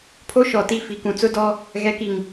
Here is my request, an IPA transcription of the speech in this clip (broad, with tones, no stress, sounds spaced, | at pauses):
pʰ o˦ ʃ ɔ˨ t i˦˨ f i˨ k ũ˨ t͡s ʊ˦ d ɔ˦ | ɣ ɛ˨˦ k i˨ ŋ